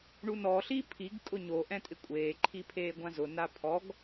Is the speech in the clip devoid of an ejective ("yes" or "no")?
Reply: no